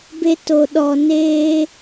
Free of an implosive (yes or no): no